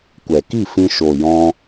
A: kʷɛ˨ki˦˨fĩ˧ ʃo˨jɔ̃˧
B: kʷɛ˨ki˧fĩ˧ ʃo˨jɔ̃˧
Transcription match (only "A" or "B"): A